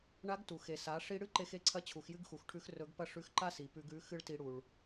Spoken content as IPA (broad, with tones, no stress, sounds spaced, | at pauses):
ɳ a˧˥ ɡ t u˩ x e˩ s a˩˧ ʂ i˧ ɽ ɨ˥ ǃ e˧ x e˧ ǀʰ ɐ˧˥ t͡ɕʰ u˩˧ x j ɨ˥ ɡ x u˩˧ x ʈʰ ʉ˧˥ x r ɵ˧˥ ɡ p ɐ˥ ʂ ʉ˧˥ x ǃ a˥ s i˩ p ʉ˧ ɡ ʉ˧˥ x ɨ˥ ɭ t i˧ ɽ u˩ ɭ